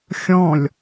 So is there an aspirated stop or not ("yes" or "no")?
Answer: no